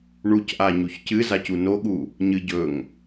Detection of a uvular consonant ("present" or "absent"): absent